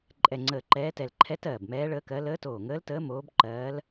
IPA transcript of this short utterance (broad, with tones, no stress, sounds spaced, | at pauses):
ǃʼ ɛ˧˩ ŋ͡ǀ əː˧˩ ǃ ɛː˧˥ t ɛ˧˩ l ǃʰ ɛ˧˥ t ɜː˧˩ b m ɛː˧˥ ɭ əː˧˥ k ɜ˧˥ l əː˧˥ t oː˧˩ ŋ əː˧˥ l t əː˧˥ m oː˧˥ b ǃ ɜː˧˥ l